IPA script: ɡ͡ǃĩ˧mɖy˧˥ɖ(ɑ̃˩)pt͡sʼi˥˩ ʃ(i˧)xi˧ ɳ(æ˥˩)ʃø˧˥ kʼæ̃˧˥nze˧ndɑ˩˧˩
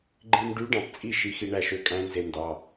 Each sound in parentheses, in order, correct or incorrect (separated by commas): correct, correct, correct